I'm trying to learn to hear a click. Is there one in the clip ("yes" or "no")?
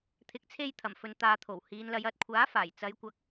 no